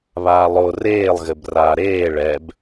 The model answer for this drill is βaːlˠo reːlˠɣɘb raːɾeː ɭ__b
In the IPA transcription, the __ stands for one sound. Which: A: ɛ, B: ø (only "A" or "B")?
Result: A